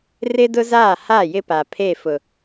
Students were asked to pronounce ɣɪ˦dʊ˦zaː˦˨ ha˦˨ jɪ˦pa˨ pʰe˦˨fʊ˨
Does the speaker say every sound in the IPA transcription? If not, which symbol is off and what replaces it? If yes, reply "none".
ɣ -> r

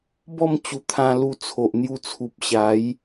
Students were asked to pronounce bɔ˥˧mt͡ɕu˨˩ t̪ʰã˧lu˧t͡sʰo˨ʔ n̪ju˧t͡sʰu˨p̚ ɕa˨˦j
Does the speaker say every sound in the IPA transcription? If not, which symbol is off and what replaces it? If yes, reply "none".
none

